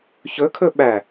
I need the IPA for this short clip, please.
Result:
ç ɵ kʰ ɵ ɓ æ

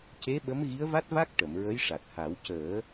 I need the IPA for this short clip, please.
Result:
c e˧˥ ɓ ə˧˥ m ɣ i˧˥ ə̯ v a˦˥ t̚ v a˦˥ k̚ ʈ ə˨˩˨ m ɹ ə˧˥ j ʂ a˨˩ t̚ h a˨˩˦ w c əː˨˩˦

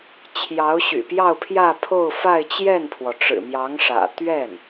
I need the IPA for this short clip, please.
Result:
t͡ɕʰ j ɑ˧˥ ʊ̯ ɕ y̰˨˩ p j ɑ˥˧ ʊ̯ pʰ j ä˥˧ pʰ o˥˧ ʊ̯ f a˥˧ ɪ̯ t͡ɕ j ɛ˥˩ n pʰ w ɔ˩ ʈ͡ʂ ɻ̩˨˩ m j ɑ˧˥ ŋ ʂ ä̰˨˩ t̪ ɥ ɛ˥˩ n

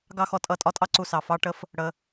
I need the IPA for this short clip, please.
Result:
ɡ ɑ˦ x ɔ˧ tʼ ʌ˦˨ tʼ ɒ˦ tʼ ɑ˦ ǀ u˧ s ɑ˨ f ɑ˦ ʈ ə˦ f | ɽ ə˧

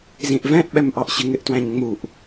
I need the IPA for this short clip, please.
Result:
z ĩ ʔ v ɛ̃ ʔ ɓ ɛ m ʔ ɑ ʔ ɕ ɪ ŋ ɪ ʔ t w æ̃ ɲ ŋ͡m u ʔ

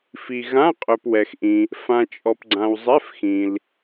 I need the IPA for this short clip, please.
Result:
f i˨ ɣ ã˧˥˧ qʼ œ˨ p w ɛ˨ x ʔ ĩ˨ | f ã˨ t͡ʃʼ ɔ˨ p ɡ͡ǀ ã˨ w zˤ ɛ˧˥˧ f x ĩ˨ l

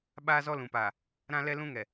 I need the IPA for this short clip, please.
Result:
ɓ aː˦ z ɔ˦ l ũ˨ p aː˨ | ɾ ã˦ l ɛ˦ l ũ˦ ŋ ɛ˨

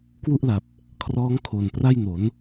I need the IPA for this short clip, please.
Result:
k w u˥˩ ʔ l a˨˩ p̚ | kʰ r ɔː˦˥ ŋ kʰ o˨˩ n p r a˥˩ j n o˩˦ n

